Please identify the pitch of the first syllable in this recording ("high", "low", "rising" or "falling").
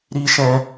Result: high